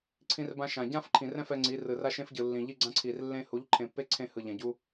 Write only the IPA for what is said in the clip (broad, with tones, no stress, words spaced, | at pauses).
ǀʰĩ˦rbã˦ʃã˨ ɟã˦fǃʰĩ˨rɛ̃˦ fɛ˦ŋ͡ǀi˨˦ rɯ˨ra˦ʃẽ˦fɟɯ˨ lːĩ˨ʎi˦ ɡ͡ǀã˦ǀʰi˨rlːẽ˦ hu˨˦ʎǃʰẽ˨pːe˦ ǀʰẽ˦hɯ˨ʎɛ̃˨ ɟu˦